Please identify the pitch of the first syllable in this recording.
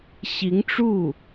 rising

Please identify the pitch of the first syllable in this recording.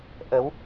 rising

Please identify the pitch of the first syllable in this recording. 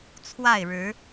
falling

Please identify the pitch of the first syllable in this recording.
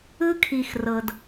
high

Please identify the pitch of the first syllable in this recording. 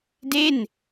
falling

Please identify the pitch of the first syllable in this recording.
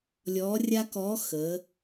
rising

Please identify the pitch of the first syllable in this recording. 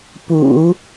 low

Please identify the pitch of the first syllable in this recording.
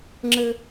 high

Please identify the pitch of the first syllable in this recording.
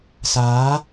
rising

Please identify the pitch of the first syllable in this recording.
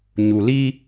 low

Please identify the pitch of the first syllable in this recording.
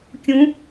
rising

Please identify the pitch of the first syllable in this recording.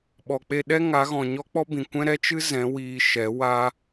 low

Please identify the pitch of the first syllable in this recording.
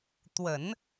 low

